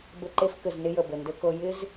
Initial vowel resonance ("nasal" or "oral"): oral